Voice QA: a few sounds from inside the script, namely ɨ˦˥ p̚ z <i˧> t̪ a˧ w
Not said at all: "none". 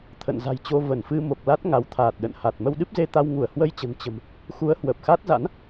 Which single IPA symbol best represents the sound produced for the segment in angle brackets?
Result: e˧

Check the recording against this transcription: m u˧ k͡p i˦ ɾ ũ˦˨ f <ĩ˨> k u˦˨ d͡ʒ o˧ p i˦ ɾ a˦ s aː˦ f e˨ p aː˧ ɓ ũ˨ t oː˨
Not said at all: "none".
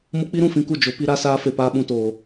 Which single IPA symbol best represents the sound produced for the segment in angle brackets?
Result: ĩ˦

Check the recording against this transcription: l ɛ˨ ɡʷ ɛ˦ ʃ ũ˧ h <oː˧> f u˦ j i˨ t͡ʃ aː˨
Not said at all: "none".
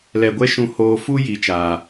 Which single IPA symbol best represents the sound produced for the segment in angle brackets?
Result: oː˧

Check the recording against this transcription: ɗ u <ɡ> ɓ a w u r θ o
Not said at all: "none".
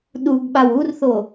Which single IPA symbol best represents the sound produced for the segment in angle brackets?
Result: ɡ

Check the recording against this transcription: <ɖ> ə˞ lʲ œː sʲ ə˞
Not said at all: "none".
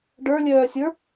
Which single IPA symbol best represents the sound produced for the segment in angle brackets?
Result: ɖ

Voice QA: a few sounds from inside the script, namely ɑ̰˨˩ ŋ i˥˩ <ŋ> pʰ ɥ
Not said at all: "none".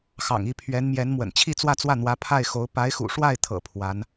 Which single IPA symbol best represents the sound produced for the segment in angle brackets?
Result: none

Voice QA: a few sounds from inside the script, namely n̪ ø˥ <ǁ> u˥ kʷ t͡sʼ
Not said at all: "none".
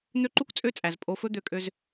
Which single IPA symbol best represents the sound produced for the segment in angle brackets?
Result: ǃ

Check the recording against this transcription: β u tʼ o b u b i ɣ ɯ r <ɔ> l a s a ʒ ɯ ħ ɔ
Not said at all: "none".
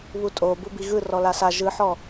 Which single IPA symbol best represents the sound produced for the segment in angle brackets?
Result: ɔ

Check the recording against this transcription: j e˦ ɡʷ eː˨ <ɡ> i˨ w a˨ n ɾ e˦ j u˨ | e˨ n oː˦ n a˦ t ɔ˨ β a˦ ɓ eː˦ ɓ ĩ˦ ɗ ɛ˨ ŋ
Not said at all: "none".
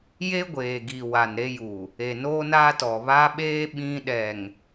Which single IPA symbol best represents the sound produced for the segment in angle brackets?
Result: ɡ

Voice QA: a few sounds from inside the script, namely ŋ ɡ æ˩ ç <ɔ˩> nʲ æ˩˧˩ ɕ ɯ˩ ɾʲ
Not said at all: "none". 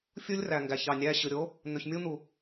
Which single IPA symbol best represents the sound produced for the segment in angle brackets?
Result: ɑ˩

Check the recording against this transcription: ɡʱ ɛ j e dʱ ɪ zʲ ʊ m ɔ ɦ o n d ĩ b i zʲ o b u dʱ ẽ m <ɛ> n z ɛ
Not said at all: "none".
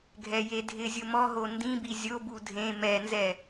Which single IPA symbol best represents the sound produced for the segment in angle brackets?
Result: ɛ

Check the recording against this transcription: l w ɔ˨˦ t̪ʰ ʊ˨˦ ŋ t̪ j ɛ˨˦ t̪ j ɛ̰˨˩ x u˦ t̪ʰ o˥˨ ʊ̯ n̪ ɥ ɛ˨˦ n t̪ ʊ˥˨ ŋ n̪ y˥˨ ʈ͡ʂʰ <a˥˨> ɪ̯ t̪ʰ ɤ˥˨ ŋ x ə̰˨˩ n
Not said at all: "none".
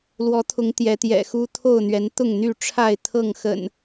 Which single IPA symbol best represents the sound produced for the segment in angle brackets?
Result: a˥˨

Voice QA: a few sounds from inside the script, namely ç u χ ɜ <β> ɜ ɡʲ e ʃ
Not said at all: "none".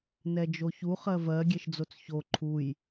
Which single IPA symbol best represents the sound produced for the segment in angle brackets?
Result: v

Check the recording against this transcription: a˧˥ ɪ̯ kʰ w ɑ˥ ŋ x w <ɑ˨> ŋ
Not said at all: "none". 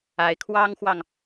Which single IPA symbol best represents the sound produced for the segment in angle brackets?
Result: ɑ˨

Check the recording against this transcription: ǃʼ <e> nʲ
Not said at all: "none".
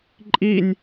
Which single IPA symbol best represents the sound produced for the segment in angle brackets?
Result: i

